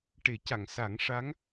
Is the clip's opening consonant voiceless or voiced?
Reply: voiceless